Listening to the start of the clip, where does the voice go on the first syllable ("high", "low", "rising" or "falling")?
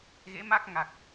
rising